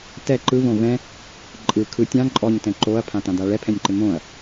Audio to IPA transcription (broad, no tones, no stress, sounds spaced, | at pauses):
t ɛ ǃ ɯ v õ v ɛ̃ | ǃʼ ɯ kʰ ɯ tʲ ã ǃʼ ɔ ɲ t ɛ̃ ǃ o ɐ̯ pʰ ã t ã d a ɭ ɛ pʰ ɛ̃ nʲ ǃ ɪ m õ ɐ̯